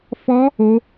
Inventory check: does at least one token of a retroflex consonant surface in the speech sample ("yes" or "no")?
no